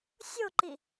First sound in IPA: sʲ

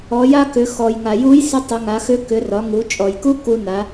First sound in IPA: ɔ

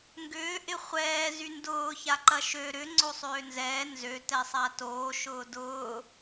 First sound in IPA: ŋ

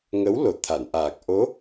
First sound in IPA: ŋ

